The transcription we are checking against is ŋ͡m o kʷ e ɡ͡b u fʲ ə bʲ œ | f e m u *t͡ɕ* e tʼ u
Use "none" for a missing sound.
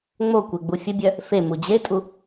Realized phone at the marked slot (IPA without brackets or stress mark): d͡ʑ